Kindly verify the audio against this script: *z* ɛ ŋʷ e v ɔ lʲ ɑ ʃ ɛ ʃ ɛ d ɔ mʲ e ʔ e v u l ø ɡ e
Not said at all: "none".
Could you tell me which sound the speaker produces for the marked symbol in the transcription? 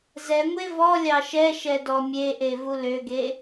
z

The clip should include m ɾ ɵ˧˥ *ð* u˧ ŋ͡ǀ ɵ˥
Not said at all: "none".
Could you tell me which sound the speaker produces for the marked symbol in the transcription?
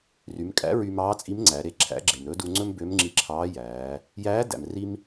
d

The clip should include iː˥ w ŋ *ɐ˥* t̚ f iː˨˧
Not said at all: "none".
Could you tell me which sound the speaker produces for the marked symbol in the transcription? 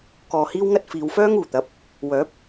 ɐ˥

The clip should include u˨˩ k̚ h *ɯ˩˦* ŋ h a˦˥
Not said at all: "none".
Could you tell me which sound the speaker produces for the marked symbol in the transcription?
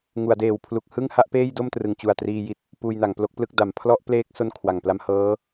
ɯ˥˩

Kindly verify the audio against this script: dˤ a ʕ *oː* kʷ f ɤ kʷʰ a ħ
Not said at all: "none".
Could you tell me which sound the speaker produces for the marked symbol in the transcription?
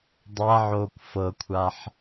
oː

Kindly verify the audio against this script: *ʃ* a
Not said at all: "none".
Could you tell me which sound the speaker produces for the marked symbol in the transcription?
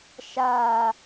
ʃ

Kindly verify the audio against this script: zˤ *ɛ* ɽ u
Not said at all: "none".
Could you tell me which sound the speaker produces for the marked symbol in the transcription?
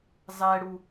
ɛ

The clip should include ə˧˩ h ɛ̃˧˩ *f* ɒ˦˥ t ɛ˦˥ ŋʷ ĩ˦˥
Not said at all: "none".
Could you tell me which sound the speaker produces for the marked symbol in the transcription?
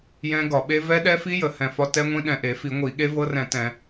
f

